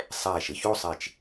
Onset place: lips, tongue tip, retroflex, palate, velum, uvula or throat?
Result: tongue tip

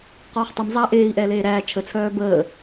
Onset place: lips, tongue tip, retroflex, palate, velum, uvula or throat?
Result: uvula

